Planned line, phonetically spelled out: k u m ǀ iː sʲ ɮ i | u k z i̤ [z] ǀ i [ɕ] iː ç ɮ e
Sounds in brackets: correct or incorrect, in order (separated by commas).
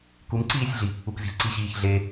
correct, correct